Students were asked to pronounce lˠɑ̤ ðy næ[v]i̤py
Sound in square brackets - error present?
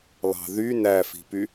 yes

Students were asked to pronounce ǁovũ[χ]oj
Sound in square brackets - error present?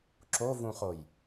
no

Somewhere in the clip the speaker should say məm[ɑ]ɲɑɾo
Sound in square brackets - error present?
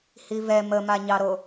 yes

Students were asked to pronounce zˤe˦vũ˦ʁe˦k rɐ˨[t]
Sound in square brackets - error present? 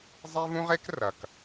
yes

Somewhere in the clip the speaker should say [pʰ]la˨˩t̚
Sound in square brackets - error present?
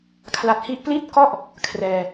yes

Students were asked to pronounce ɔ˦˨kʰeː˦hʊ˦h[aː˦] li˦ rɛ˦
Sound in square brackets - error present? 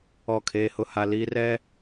yes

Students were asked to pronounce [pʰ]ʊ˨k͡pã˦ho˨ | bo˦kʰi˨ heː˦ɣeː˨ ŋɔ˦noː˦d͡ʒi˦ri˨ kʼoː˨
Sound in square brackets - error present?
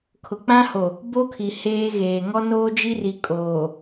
yes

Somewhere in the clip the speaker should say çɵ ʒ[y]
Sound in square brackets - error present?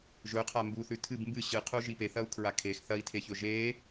yes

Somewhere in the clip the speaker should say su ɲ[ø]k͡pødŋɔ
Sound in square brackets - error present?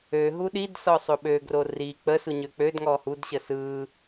no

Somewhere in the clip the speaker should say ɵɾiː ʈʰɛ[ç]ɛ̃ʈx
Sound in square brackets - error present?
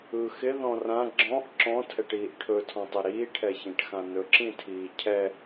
no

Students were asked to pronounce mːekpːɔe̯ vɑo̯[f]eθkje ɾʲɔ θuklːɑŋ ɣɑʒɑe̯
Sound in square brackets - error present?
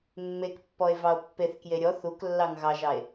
yes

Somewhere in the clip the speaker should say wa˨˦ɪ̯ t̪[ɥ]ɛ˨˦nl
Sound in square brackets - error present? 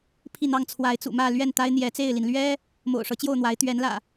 no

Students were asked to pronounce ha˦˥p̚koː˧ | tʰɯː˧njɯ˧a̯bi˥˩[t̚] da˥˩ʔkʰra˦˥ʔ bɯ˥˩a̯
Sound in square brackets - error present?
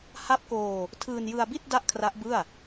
no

